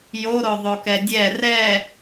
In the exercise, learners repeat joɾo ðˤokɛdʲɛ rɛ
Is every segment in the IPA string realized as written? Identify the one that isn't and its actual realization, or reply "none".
none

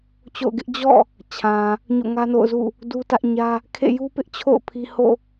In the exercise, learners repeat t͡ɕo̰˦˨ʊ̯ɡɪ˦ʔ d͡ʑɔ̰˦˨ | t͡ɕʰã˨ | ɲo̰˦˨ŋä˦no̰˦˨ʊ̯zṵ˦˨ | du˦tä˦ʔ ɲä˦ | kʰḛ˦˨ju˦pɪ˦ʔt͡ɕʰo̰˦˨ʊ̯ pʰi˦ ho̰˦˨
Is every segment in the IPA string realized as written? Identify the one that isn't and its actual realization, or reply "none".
none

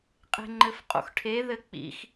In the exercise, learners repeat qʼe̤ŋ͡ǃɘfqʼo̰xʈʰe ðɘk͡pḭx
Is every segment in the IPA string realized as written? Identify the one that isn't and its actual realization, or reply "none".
none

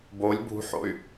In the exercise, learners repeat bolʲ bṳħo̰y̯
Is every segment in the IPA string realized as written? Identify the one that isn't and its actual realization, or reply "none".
none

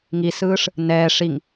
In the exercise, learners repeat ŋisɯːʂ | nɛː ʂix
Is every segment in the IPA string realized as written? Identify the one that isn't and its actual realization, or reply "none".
x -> ŋ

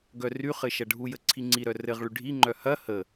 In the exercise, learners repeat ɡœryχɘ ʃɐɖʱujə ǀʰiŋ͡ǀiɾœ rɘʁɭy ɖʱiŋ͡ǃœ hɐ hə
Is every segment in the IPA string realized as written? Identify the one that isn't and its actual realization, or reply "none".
none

